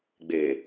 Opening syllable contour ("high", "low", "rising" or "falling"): low